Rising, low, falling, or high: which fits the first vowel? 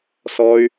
high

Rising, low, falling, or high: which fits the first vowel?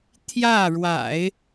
falling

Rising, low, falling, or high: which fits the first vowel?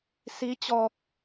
rising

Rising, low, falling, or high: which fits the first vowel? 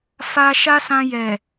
high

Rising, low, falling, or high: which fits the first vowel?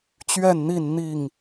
falling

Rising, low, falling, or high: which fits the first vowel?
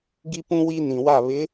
high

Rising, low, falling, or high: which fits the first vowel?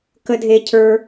low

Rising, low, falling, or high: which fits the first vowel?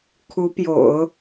rising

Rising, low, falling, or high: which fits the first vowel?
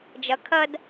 rising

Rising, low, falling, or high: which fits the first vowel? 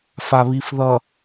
low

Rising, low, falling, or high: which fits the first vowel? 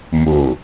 low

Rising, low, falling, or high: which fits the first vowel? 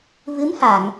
rising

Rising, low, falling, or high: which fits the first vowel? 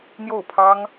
falling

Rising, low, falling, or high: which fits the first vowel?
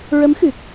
rising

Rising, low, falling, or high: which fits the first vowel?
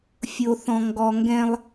low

